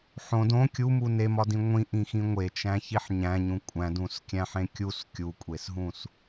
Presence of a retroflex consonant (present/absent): absent